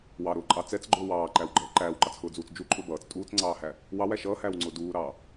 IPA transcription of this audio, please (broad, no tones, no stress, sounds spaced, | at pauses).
w ɑ ɾ ʊː ǃʼ ɑ t͡s ɛ t͡s ɡ͡ǃ ʊː w ɑː ǃ æ w ɡ͡ǃ ʌː ǃ æː w ǃ ɑ t͡s x ʊː d͡z uː t͡s d͡ʒ u ǃʼ ʊ b ʌː t͡s tʼ uː t͡s ŋ͡ǀ ɑː h æ | w ɑ w æ ʃ ʌː h æː w ŋ͡ǀ ʊː d uː ɾ ɑː